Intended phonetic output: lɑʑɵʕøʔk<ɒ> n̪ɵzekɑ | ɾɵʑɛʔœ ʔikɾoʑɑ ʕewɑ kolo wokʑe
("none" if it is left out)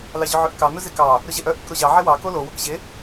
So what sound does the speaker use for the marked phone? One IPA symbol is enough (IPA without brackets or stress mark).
ɑ